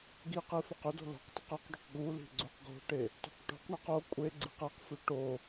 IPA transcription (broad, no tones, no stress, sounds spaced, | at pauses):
ɡ i q i f ɛ q ʏ d o̤ l o̤ q tˤ ə q ɛ q ɖ o q ɡ u l i̤ ɡ͡ǀ u q ɡ o̤ ʈ e | t o̤ q ʈ o̤ q ɳ ɛ q o kʷʼ e ɡ͡ǀ i q ɛ q f ʏ ʈ o